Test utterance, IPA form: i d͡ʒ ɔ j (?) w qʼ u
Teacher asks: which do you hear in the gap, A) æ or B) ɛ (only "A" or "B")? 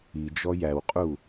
A